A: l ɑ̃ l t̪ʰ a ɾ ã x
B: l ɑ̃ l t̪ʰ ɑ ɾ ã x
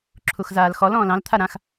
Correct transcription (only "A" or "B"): A